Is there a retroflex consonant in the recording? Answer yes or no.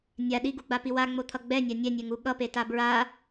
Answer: no